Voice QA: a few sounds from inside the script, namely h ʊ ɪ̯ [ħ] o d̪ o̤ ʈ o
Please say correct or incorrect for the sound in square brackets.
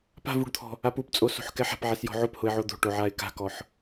incorrect